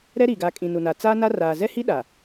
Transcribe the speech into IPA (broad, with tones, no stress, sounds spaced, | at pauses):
ɾ ɛ˦ ɾ i˨ ɡ a˨˦ kʼ ĩ˨ n u˨ n a˨ t͡s aː˦ n a˦ r aː˨ z ɛ˦ h i˦ ɗ a˨